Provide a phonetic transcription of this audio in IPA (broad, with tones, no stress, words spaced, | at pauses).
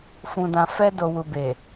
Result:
fũ˨dã˨ fɛ˧do˨wu˨be˨